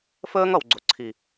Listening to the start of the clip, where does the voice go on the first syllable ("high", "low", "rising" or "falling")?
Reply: high